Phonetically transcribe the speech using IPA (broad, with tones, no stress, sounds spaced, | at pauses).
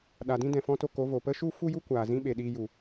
ɗ a˨ d ĩ˧ d ɛ̃˨ f ɔ̃˦ t o˧ k o˨˦ v o˨ p ə˦ ʃ u˦ f u˦ j u˦ kʷ aː˨ z ĩ˦ ɓ e˨ ɗ iː˧ j u˨